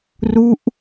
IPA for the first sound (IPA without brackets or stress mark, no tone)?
r